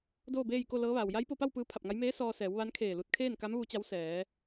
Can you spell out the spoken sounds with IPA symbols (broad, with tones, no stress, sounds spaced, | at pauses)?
d oː˥˨ b eː˥˨ j k o˥˨ l ɤː˧˥ ʋ aː˩ w j a˧˥ j p o˧ p a˥˨ w p ɯː˧˥ pʰ a˧˩ p̚ ŋ a˧˥ j m eː˧˥ s ɔː˧ s ɛː˩˧ w ʋ a˧˥ n kʰ eː˧˩ l u˧ t̚ kʰ eː˥˨ n k a˧˥ m ʋ u˧˥ t͡ɕ a˧˥ w s ɛː˩˧